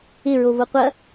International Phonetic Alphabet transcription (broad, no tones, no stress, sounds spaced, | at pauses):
ɪ ɹ o v o qʷ ɐ